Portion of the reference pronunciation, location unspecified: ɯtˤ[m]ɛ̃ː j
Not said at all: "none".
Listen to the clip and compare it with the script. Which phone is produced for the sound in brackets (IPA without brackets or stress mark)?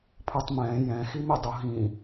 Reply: m